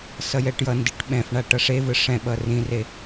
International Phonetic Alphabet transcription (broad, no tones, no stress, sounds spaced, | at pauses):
s ʌ j ɛ ʈ j ʌ n d i ʈ ɓ ɛ̃ f ɳ a ʈ ʌ ʂ e v ɯ ʂ ɛ̃ ɓ ʌ r ĩ r e